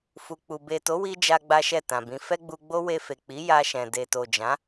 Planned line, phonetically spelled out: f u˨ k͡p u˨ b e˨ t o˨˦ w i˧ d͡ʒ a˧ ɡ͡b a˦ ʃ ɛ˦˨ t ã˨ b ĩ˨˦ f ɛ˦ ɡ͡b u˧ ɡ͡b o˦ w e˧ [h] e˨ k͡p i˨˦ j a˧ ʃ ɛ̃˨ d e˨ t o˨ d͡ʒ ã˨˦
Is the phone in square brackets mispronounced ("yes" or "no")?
yes